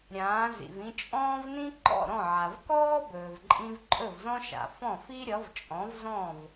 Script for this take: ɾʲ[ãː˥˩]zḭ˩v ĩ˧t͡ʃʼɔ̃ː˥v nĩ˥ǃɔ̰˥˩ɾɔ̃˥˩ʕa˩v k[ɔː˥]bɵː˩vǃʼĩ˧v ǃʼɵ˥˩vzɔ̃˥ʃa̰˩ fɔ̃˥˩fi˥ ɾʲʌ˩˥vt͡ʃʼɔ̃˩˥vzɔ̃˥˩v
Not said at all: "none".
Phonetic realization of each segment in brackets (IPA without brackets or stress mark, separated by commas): ãː˩˥, ɔː˥